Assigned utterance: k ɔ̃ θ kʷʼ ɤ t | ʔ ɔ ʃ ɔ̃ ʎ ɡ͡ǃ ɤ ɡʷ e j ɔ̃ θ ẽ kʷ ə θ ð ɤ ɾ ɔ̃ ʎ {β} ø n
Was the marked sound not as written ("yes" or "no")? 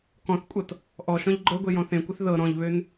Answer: no